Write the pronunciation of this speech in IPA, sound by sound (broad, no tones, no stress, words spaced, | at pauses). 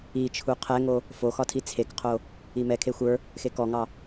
it͡ʃʰu qʰɛŋo | foxɒtʰi t͡sʰekqʰo | imɛ kʰexʷə˞ | xekɔŋɑ